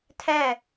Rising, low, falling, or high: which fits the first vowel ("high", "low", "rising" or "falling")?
falling